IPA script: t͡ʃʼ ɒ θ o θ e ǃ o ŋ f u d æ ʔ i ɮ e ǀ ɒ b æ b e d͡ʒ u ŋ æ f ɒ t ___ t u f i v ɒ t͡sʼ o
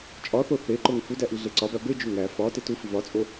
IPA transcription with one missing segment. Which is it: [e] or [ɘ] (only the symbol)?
e